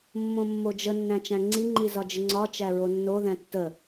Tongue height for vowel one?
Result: mid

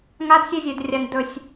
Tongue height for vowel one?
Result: low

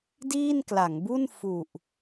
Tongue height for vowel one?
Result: high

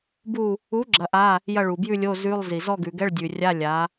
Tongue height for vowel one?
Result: high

